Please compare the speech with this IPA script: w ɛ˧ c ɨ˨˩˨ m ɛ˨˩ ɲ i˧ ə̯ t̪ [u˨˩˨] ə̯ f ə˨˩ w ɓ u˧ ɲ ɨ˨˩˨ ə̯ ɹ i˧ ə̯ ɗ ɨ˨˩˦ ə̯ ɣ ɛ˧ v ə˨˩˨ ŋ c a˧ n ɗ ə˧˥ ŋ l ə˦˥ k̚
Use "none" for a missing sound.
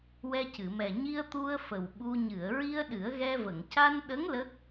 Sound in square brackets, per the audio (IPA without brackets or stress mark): u˧